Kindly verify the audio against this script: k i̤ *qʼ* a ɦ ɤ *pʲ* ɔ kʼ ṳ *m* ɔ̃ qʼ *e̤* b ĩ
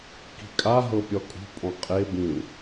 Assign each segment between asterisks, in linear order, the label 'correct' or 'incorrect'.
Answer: incorrect: kʼ, correct, incorrect: pʼ, incorrect: e

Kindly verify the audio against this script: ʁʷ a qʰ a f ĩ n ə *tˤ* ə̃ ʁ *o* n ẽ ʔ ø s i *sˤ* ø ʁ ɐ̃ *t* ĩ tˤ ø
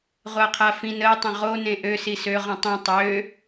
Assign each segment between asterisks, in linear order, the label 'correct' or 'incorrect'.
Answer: correct, correct, incorrect: s, incorrect: tˤ

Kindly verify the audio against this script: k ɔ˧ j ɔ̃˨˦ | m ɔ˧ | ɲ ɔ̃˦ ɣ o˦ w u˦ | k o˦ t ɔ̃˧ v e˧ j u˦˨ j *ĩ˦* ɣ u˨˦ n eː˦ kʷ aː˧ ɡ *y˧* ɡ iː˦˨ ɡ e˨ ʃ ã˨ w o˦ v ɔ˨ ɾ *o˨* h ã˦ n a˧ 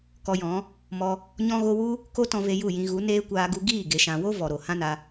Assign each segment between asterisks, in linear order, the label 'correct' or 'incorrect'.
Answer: incorrect: ĩ˧, incorrect: u˧, correct

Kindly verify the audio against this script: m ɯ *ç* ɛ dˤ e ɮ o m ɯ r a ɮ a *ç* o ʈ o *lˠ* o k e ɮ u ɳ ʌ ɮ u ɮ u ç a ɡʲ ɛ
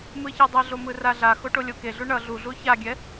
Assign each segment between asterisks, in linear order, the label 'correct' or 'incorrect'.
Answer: correct, incorrect: x, incorrect: lʲ

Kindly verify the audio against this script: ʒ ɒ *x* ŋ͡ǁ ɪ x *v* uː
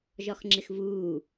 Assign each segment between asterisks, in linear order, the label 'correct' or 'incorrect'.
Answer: correct, correct

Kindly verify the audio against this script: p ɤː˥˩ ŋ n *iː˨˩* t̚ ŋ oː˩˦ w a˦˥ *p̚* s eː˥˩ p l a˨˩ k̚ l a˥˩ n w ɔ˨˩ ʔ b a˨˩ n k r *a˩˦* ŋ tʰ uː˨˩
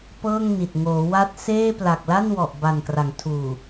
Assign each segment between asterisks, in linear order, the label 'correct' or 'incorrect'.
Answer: incorrect: i˨˩, incorrect: t̚, correct

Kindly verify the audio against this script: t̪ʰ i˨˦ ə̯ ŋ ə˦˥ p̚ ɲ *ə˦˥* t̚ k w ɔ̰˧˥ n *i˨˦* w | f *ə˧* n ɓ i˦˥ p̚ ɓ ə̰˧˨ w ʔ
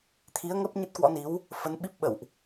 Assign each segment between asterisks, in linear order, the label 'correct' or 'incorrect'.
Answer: correct, correct, incorrect: ə˨˦

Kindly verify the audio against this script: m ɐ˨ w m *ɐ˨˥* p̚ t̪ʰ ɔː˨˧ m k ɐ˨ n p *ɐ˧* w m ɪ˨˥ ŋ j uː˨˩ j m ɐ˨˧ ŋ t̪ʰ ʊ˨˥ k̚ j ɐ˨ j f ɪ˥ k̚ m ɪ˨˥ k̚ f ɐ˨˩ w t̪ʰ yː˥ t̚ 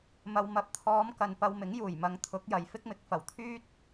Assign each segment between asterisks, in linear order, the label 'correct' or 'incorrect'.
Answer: correct, correct

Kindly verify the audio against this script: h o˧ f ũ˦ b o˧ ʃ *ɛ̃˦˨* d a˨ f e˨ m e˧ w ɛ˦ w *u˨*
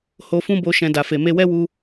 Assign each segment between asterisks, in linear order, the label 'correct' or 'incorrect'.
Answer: incorrect: ɛ̃˨, incorrect: u˧

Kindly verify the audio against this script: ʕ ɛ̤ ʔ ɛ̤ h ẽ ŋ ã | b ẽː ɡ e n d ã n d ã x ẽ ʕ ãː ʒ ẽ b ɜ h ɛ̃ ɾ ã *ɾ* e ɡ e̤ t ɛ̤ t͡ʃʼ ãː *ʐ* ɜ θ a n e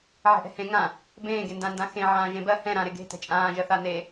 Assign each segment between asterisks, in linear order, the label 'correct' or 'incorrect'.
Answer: correct, incorrect: ʒ

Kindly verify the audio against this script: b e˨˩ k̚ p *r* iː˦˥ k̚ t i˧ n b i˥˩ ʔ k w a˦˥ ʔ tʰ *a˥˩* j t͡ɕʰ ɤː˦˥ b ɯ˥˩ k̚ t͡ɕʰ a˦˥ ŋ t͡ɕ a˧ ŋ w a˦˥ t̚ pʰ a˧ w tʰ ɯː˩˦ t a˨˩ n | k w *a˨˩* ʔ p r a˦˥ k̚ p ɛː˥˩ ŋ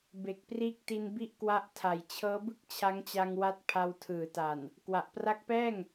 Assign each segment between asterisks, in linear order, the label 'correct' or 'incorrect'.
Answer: correct, incorrect: a˨˩, correct

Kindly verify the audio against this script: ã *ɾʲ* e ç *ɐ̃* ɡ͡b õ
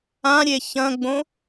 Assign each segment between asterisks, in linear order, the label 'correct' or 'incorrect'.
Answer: correct, correct

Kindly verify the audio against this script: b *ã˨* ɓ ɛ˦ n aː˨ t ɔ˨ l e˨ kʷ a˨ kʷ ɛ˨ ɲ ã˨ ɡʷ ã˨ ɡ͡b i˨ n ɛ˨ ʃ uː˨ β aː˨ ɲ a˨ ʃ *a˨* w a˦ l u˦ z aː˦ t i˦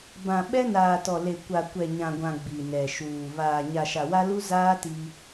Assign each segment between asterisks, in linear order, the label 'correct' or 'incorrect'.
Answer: correct, correct

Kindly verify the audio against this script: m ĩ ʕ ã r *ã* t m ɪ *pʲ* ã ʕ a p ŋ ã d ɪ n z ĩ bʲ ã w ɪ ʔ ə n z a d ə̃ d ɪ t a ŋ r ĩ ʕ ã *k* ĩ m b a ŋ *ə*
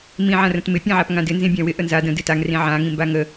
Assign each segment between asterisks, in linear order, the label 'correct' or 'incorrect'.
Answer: incorrect: ə̃, correct, incorrect: ŋ, correct

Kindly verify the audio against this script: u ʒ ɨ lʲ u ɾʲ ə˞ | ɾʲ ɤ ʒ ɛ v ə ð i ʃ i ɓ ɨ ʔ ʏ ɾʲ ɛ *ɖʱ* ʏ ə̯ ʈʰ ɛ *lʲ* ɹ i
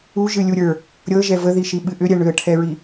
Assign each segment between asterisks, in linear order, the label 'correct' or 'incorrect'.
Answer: incorrect: ɳ, incorrect: none

